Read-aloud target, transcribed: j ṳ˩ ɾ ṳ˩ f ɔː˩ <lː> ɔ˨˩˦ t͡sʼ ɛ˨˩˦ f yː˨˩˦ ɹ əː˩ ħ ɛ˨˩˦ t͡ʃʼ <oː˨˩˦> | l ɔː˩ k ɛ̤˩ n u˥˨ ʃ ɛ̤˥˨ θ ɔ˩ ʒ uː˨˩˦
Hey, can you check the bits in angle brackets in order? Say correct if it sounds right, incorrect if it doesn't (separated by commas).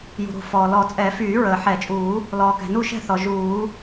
incorrect, incorrect